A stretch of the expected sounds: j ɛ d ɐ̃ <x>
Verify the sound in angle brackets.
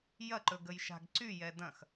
correct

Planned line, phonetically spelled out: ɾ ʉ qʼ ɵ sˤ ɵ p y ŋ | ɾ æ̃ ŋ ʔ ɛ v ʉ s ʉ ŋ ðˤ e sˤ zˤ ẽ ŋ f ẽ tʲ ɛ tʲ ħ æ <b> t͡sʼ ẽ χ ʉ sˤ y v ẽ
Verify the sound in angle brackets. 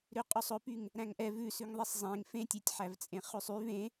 incorrect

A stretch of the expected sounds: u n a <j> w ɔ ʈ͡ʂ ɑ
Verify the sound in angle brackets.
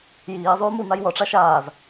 correct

